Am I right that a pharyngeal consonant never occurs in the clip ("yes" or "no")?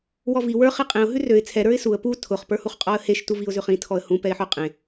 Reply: no